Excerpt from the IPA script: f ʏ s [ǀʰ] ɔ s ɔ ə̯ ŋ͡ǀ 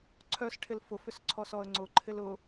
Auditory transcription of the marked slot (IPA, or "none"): ǀʰ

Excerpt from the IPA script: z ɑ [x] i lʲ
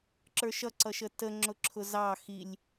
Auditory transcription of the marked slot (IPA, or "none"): x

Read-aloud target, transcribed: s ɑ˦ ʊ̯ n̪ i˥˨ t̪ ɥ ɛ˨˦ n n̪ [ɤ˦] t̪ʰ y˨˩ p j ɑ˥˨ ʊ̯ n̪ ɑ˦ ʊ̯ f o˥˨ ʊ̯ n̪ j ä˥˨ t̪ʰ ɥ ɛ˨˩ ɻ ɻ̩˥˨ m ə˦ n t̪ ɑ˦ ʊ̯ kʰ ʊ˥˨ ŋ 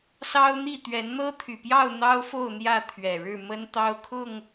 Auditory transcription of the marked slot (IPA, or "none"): ɤ˦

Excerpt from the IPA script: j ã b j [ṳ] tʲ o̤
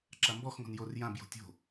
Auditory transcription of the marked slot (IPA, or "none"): o̤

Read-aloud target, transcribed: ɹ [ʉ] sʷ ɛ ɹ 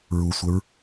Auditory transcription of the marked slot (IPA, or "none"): u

